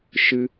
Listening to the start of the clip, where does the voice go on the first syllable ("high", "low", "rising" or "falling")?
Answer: high